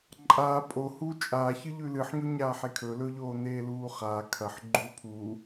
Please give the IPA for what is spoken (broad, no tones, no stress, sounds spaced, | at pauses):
ǃʼ aː pʼ o h uː t͡ʃʼ aː ç ɨ ʎ ʉ l ɨ ħ ɲ o ɲ aː ħ e kʰ ɵ l ɵ ʎ oː n eː l uː χ aː kʰ ɐ ħ ɡ͡ǃ uː pʰ uː